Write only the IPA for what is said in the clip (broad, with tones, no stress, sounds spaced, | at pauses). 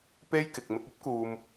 p e˥ j k ɪ˨ k̚ m ɪ˧ k̚ ɐ˥ p̚ k uː˨ m